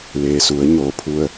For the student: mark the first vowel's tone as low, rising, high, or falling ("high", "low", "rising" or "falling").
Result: low